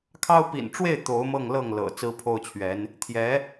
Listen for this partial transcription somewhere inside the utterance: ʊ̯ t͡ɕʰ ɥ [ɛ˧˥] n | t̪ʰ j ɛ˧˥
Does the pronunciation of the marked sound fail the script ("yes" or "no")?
no